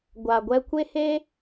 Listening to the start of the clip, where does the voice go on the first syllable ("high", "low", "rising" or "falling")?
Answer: low